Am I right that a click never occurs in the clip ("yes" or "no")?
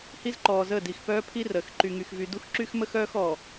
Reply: no